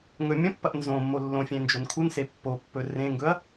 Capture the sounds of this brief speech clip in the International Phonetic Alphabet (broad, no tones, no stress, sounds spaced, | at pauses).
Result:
ŋ ɵ mʲ ɐ̃ pː ɐ ʔ n z õ mː o lː õ fʲ ẽ n d͡ʒ o n kʰ u n s e pː o pː ɵ r ẽ ŋ ɡ ɵ ɐ̯